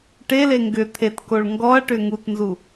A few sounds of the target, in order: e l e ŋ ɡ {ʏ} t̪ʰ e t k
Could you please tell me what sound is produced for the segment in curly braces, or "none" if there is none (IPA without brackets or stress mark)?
ʏ